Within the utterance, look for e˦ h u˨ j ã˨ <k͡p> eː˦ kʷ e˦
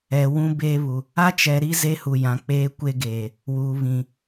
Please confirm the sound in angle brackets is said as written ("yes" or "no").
yes